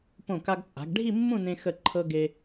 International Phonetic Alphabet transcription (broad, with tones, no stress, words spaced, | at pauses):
põ˧˩ka˧ɡt͡sʼa̤˩˧ɡ ɖʱi˥˧mːũ˥˧nẽ˧ xə˧˩ǃʰɤ˧ ɡe˧